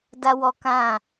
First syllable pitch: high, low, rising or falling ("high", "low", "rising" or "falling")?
high